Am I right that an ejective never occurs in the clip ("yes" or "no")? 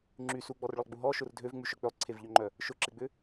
yes